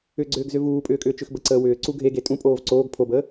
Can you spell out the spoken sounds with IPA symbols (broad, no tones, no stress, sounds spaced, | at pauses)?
ʏ ɡ͡ǀ ʏː ɡ z ʏ v uː pʼ ʏː kʼ ʏː t͡ʃ ʏ x b ə ǀ əː w ʏː ǀ u ɡʱ e ɡ e tʼ ũ pʼ oː v ǀ oː ɡ pʰ o b əː